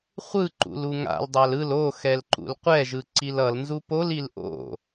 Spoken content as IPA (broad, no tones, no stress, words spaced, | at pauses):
χʷɯǃṵl uŋa̰l dˤalɯl o xɛlǃṵlqʷɛʒɯ ǀilʌlnzu polil ʔo̰